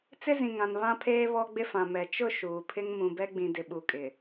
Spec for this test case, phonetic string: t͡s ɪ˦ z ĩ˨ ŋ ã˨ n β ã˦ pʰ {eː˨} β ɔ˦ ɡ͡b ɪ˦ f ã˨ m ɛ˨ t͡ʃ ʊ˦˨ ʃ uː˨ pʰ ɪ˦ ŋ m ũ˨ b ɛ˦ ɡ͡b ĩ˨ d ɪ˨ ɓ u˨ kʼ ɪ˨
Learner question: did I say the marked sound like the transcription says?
no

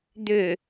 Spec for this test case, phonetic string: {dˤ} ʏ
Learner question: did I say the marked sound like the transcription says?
no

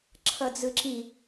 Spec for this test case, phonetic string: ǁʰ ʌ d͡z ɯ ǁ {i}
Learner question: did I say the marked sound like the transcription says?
yes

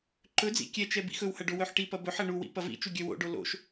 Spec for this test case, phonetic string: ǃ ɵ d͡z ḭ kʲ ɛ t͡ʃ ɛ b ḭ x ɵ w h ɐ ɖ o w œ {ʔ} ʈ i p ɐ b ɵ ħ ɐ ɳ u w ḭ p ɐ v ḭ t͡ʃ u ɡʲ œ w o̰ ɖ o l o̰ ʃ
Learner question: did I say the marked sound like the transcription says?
no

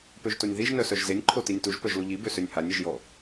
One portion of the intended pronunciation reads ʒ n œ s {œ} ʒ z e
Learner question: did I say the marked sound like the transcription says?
yes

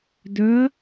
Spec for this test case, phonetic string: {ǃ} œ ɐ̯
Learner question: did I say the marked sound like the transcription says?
no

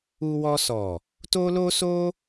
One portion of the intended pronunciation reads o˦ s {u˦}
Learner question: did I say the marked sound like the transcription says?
no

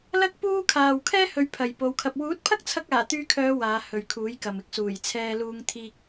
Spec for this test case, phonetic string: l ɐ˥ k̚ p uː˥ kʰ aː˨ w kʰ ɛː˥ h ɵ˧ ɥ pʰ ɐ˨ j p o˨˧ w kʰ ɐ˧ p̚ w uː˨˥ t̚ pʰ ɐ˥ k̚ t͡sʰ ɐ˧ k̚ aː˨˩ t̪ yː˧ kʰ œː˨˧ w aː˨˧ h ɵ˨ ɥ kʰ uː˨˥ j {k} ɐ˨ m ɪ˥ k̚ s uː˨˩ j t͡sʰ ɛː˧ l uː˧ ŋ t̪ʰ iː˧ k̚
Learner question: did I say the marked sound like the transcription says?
yes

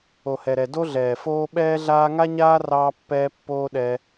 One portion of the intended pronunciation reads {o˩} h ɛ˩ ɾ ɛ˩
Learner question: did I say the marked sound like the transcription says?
yes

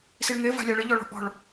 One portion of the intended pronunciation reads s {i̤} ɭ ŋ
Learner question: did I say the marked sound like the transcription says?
no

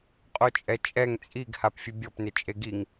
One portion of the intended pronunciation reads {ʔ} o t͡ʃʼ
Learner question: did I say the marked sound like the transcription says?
no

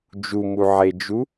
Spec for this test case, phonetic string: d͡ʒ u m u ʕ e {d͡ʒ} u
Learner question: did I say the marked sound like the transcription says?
yes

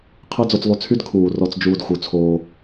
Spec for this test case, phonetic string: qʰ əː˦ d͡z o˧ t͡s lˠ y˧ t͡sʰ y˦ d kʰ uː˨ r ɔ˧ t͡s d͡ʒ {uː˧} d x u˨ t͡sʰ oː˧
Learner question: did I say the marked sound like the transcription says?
yes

